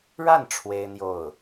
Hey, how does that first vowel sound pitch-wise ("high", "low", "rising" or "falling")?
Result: falling